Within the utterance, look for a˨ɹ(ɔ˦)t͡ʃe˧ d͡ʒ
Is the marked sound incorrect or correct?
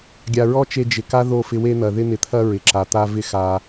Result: correct